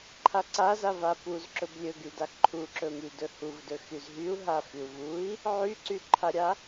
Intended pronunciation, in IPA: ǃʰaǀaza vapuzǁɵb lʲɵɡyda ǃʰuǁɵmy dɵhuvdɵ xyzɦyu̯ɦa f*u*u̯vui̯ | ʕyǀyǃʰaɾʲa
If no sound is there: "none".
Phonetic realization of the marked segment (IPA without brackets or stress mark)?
y